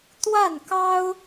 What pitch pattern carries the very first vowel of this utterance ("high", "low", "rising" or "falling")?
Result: falling